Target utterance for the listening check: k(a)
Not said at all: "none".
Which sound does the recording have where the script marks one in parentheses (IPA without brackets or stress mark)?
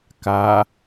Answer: a